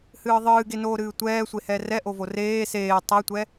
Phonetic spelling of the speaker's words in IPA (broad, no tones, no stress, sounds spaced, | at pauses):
h ɨː ðˤ ɨː ɡ e n oː ɾ ɨː tʷ ɛː sʷ e h ɛ r ɛ ʔ o v o r eː s eː tˤ ɛ tʷ ɛ